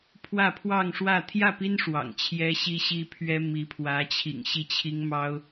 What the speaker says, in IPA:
pʰwä˥˧pʰwɑ˥˧ŋʂwä˥˧ t̪ʰjä˥˩pi˥n ʂwɑ̰˨˩ŋ t͡ɕʰjɛ˥ɕi˥ɕi˥pʰɥɛ˥ mi˧˥pʰwä˧˥t͡ɕʰḭ˨˩ŋ ɕi˥˩t͡ɕʰi˥ŋ mɑ˥ʊ̯

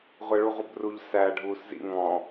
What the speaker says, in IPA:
ʁʷɛɭuʁʷəbruʎ sæ ɖʱuːszḭ ŋɔ̃

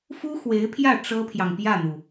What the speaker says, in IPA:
fu˥xwe˧˥ɪ̯pʰjä˥˩ ʈ͡ʂɤ˥pʰjɑ˨ŋpjä˥˩n̪u˩

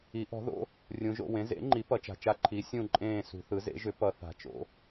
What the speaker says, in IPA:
i˩˥ʔɔ̤˩˥ ðo̰˩˥ | rʲũ˩˧ʒo̰˦˨wẽ˩˥ zḛ˩˥ŋ͡ǃi˩˥ pʌ˩˥t͡ʃa̤˩˧t͡ʃa˦˨ ǃʰi˩˥ sʲũ˦˨ǃʼẽː˦˨ sṳ˩˧θɯ˩˥zḛ˩˥ʒʏ˩˥ pʌ˩˧ θa̤˩˧t͡ʃo̰˩˥

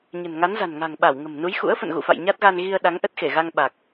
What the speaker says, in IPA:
ɲə̤˨˩nŋa˨˦nza̤˨˩nŋa̤˨˩ŋ ɓa˧˩wŋə̤˨˩mnu˨˦j xṵ˧˥ə̯ fə̰˧˨nɣṵ˧˨fa̰˧˨j ɲa˦˥t̚ɣa˧nɣi˧ə̯ ɗa˨˦ŋʔə˦˥t̚xe˧˩ɣa˧ŋ ɓa˨˩k̚

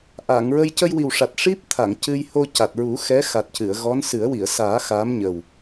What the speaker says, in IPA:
ʔa˨˩˨ŋɹə˧j cə˧jwi˨˩wʂa˨˩t̚ ʂi˦˥p̚ t̪ʰa˨˩˨ŋcɨ˧j ho˧ca˨˩t̚ɹu˨˩˦ xɛ˧˥xa˨˩t̚cɨ˨˩˨ə̯ ɣɔ˧˥nsɨ˨˩˦ə̯ wi˨˩˨ə̯saː˨˩˦ xaː˧˥mɲə˨˩w

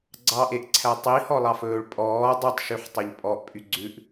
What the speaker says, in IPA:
ɡ͡ǀɑʔeʔǀʰæ tˤihɔlˠɑfɵːɭ pʼɔː dˤʉtˤʃyħtˤɛʎ pʼɔʔpʼy ɡ͡ǀʉʔ

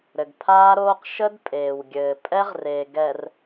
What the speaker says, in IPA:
ɾɘ˨ɡpʰaː˦ɾoː˦q ʃə˦d pʼeː˨wɡʲɘː˨pʼɛ˦ʁre˨ ɡɛ˨r

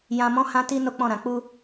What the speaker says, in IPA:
jã˨mɔ̃˨˦ hã˦ti˦ no˦k͡pɔ̃˦˨ɾã˨ k͡pu˧

